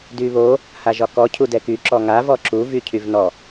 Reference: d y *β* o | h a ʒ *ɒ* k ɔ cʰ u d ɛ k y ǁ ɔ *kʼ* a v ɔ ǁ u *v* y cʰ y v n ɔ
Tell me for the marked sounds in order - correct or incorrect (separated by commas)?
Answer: correct, correct, incorrect, correct